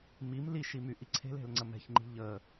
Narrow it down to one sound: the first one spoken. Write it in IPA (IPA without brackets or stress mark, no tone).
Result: m